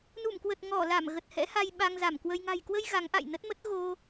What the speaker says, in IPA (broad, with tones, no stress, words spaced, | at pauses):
nu˧˩mkwə˨˩t̚ ŋɔ˧˩ la˧˩mɣə˨˩t̚ hɛ̰˧˥ha˧j ɓa˧ŋza˧˩mkwə˧j ŋa̤˨˩jkwə˧j ɣa˨˦ŋʔa̰˧˨jnə˦˥t̚mə˦˥t̚ ɣo˧